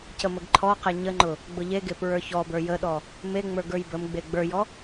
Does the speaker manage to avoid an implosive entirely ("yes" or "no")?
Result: no